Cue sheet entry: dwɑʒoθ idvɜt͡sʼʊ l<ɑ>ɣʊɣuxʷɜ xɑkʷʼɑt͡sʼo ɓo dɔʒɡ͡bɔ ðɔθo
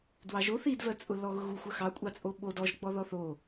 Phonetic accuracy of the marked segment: incorrect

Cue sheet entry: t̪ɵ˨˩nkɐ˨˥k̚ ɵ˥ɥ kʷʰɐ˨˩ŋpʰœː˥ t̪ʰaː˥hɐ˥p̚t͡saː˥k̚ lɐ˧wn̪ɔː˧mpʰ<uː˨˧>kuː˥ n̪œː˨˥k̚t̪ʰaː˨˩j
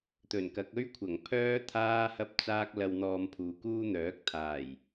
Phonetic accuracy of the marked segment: correct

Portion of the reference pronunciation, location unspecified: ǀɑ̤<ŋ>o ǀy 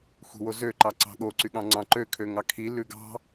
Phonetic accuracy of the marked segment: incorrect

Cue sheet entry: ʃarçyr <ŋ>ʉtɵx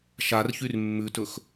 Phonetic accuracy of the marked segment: incorrect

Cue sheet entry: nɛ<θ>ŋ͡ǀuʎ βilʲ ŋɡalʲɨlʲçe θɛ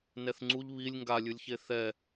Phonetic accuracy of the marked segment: correct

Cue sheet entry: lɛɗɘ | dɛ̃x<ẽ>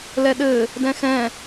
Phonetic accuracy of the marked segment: incorrect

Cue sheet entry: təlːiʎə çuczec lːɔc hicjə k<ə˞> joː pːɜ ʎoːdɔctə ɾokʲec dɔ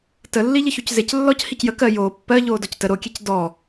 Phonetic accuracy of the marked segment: incorrect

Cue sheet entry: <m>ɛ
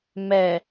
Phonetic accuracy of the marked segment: correct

